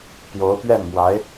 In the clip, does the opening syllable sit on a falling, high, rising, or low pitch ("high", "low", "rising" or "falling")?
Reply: rising